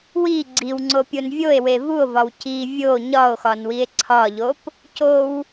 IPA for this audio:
w i ɡ͡ǀ i w ŋ͡ǀ o pʲ o n vʲ o e̯ w e v u o̯ v ɒ w c i vʲ o ɲ ɒ o̯ x ɒ n w i e̯ ǀʰ ɒ ʎ o p | c o w

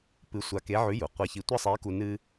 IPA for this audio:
p ɨ˧˥ sʷ a˧ k e˧˥ ʕ ʉ˧˥ j u˩ qʷ ɐ˧˥ ç i˧ tʷ ɐ˥ sˤ e˧˥ k u˧ n ɨ˥

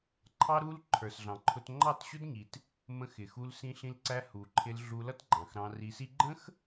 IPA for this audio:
ǃʰ ɑ˦ ɾ u˦ l ǃʰ ə˞˨ s ɮ ɑ̃˨ ǃʰ ʊ˧ t ŋ͡ǃ ɑ˦˨ t ɕ ʊ˦ d ɲ i˨ t | m ə̃˧ x ɪ˨ x u˧ l s ĩ˧ ɬ ĩ˧ l ǀ æ˧ h u˨ ǃʰ ɪ˧ l ɮ u˧ l ʌ˦ t ɡ͡ǃ ɑ̃˨ x ɾ ɑ̃˧ r i˧ s i˦ ɡ͡ǃ ə̃˦ x

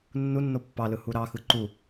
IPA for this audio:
nː u nː o pː ɑ l ɯ h u ɾ ɑ x ɯ ǃ u

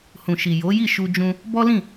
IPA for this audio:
h ũ˨ ʃ i˨ j o˨˦ j i˦˨ ʃ u˧ d͡ʒ ũ˧ | b ɔ˦ l ĩ˦˨

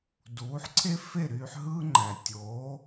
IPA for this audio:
d uː˩˥ ħ ǀʰ e˥ f e˥˩ ɾ yː˧ ħ ɦ ɯː˥ ŋ͡ǃ æ˩ tʲ oː˩˥

